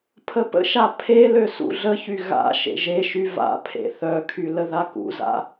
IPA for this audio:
pʰ ə p ə̰ ʃ a pʰ e l ø s ṵ ɮ ə ç y ɣ a̰ ʃ ḛ ʒ e ʃ y v a̰ pʰ ḛ θ œ kʰ y l ə ð a k ṵ z a̰

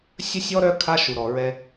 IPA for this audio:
sʲ ə˦ sʲ ɔ˦ ɾ œ˦ kʰ a˦ ʃ u˨ ɾ ɔ˨ ɹ ɛ˦

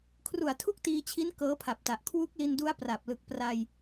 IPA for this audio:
kʰ r u˨˩ a̯ tʰ u˥˩ k̚ t iː˧ t͡ɕʰ i˦˥ n k ɤː˦˥ pʰ a˨˩ p̚ t a˨˩ ʔ kʰ w u˦˥ k̚ l i˧ n d u˦˥ a̯ p r a˨˩ p̚ l ɯ˨˩ k̚ p r a˧ j

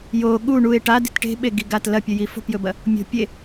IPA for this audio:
j o ɠ u ɳ u e̯ ʈ a d i̤ t ʈ e̤ ɓ e ɡ i ɡ a t l ɐ pʲ ɵ j i f o̤ p j ɵ b ɐ | mʲ o̤ pʲ e

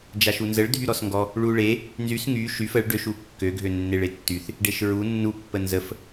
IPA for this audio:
d͡ʒ a ʃ u n z ə ɭ dʱ y ɾ ɔ s ŋ ɡ ɔ | ɭ u ɭ e | n z y s ŋ y ʃ y f ə ɭ ɖ ø ʃ u kː ø ɡʱ ø nː e ɭ e tː y θ | ɖ e ʃ ɹ u nː u pː ə n z ə f

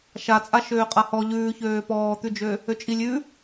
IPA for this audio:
ʃ a t͡sʼ a ʃ øː qʼ a h ɔ ʎ ʉː ç øː p ɔː t̪ ʉ d͡ʒ ø | ø t͡ʃʼ i lʲ ʉ

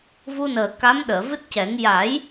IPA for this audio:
v u˧ n əː˨˩ k a˧˥ m ɗ əː˨˩˨ v ɨ˦˥ t̚ c ɛ˨˩˦ ŋ j a˨˩˦ j

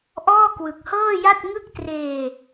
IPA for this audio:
ʔ ɔː˥˩ k w ɯ˨˩ k̚ h ɤː˥˩ j a˥˩ t̚ ŋ ɯ˥˩ k̚ t r eː˧

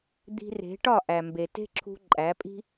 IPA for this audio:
d̪ i̤˧ r e̤˨˦ ʈ ɒ˦˨ ʔ æ˨ m b e˨ t e̤˦ ǁʰ ṳ˧ ǃʼ æ˨˦ pʼ i̤˦

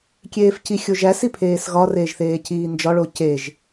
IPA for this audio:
kʲ eː f c i xʲ o ʒ æ s i pʰ eː s ɣ ɒ r eː ʒ θ eː c iː n d͡ʒ ɒ ɭ o c e ʒ

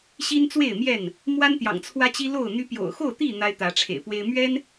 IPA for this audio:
ɕ i˦ n t͡s w e˥˨ ɪ̯ m j ɛ˥˨ n | m w a˦ n t̪ j ɑ̰˨˩ ŋ t͡sʰ w ä˦ t͡ɕ i˦ l o˥˨ ʊ̯ n̪ y˦ p j o̰˨˩ ʊ̯ x o˥˨ ʊ̯ t̪ i˥˨ n̪ a˦ ɪ̯ t̪ ä˨˦ ʈ͡ʂʰ ḛ˨˩ ɪ̯ p w e˦ ɪ̯ m ɥ ɛ˦ n

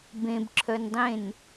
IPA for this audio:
b ẽ b ǁʰ œ n dˤ ẽ n

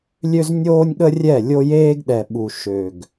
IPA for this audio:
lʲ ø˦ z nʲ oː˦ nʲ ɠ ə˦ rʲ ɛ˦˨ lʲ o˦ j eː˦ ɡ ɗ ɛ˨ ɓ u˨ ʃ ø˨ ɡ

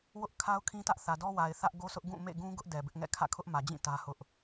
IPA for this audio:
w ʊ˦ ʔ kʰ a˦ ʊ̯ kʰ ĩ˦ t ä˦ ʔ θ ä˨ d ɔ˦ w a˨ ɪ̯ θ ä˦ ʔ ɡ o˦ s ʊ˦ ʔ ɡ ũ˦˨ m ḛ˦˨ ɡ ũ˦ ɡ ʊ˦ ʔ d ɛ˨ b ɪ˦ ʔ ŋ ɛ̰˦˨ kʰ ä̰˦˨ kʰ ʊ˦ ʔ m ä˨ d͡ʑ ĩ˦˨ t ä˦ h ʊ˦ ʔ

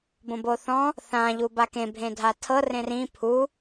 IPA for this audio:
b õ b o θ ɔ̃ | θ ã ʎ u b a k ẽ bʱ ẽ dʱ a tʰ ɤ r ẽ r ĩ pʰ u

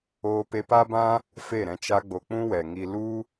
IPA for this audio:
oː˧ p e˧ p a˦ b ã˦ | f e˦˨ ɾ ɛ̃˧ t͡ʃ a˦ ɡ͡b o˧ k͡p ũ˦ w ɛ˨ ŋ i˧ l u˦

